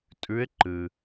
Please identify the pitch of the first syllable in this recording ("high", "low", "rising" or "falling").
rising